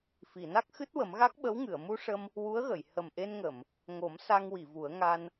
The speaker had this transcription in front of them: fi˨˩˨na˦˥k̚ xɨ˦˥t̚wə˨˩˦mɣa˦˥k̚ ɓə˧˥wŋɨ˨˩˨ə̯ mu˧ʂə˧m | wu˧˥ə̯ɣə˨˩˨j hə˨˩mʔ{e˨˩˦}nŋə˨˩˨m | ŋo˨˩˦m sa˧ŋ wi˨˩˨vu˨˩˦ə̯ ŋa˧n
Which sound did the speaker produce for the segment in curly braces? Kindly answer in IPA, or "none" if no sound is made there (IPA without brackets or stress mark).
e˧